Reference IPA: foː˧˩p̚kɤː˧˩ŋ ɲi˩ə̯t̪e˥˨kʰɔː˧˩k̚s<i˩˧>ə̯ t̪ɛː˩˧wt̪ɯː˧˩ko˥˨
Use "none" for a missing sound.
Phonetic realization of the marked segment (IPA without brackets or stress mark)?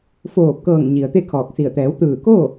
i˧˩